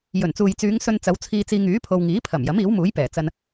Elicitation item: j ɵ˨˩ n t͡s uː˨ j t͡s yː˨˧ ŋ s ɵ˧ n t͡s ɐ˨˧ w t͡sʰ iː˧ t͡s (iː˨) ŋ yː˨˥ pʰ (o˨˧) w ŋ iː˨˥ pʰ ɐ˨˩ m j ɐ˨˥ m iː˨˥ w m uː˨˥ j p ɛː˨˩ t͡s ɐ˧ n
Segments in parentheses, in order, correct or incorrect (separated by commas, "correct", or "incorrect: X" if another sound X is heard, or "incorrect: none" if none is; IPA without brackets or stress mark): incorrect: iː˧, incorrect: o˧